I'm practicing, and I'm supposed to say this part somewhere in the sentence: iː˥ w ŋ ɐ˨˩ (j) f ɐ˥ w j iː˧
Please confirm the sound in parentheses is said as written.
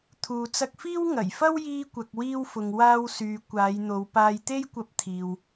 yes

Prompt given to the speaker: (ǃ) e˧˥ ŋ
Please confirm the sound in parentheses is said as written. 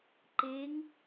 yes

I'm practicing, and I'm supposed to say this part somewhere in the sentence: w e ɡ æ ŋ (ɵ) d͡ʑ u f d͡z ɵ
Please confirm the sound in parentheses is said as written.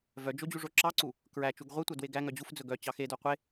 no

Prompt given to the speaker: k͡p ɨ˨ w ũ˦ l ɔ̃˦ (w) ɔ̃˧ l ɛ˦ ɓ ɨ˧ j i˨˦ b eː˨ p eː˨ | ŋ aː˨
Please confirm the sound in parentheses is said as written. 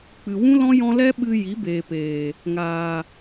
no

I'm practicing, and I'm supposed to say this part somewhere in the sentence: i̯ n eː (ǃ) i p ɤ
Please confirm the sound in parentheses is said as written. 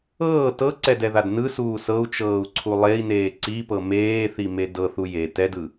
no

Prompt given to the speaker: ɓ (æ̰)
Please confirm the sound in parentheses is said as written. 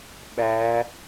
no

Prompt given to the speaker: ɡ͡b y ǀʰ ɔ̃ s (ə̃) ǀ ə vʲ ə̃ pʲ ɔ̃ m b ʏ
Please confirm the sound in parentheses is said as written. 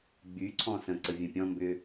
yes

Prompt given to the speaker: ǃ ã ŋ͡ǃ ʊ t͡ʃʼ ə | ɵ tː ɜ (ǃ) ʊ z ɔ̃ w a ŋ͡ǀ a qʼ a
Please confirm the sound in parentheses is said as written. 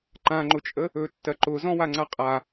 yes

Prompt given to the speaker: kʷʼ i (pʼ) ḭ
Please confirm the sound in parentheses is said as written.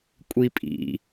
yes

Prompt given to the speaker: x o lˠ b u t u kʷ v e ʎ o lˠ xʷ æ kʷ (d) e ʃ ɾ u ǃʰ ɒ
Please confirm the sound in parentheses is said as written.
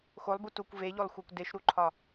yes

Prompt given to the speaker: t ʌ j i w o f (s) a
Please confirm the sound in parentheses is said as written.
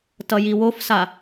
yes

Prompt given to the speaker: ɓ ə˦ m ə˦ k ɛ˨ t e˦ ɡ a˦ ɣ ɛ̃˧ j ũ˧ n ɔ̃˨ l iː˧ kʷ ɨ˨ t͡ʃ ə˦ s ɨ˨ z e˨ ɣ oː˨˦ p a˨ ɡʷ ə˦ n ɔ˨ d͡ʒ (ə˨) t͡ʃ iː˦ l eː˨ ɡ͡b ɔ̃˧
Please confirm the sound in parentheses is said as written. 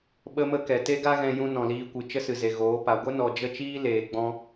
no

